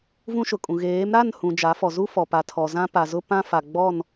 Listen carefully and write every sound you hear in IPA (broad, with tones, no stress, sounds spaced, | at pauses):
v ũ˦ ʃ ʊ˨ kʼ ũ˨ ɣ eː˨˦ m ɾ a˦˨ n h ũ˨ d͡ʒ a˨˦ f ɔ˨ z u˦ f ɔ˨ p a˨ tʰ ɔ˨ z ã˦ p a˨ z ʊ˦ p ã˦ f a˨ ɡ͡b ɔ˦˨ n